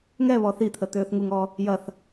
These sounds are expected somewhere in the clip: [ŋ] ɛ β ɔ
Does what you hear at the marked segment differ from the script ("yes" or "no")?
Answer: no